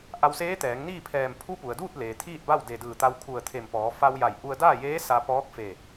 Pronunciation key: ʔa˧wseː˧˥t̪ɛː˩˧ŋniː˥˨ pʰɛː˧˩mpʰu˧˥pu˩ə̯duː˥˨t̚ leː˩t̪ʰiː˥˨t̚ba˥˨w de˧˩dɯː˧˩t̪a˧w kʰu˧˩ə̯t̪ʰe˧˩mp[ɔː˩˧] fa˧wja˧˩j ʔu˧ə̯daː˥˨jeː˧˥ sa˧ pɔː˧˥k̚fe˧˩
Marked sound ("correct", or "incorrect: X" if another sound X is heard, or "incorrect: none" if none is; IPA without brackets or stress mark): correct